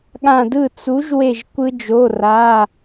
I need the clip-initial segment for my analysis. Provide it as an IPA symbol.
ɠ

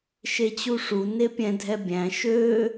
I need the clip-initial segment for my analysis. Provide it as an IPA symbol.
ʃ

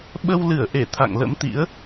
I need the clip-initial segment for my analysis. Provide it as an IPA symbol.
ɓ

